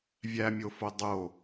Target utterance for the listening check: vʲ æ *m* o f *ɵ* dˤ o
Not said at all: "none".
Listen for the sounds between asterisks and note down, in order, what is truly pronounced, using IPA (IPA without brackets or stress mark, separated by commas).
mʲ, o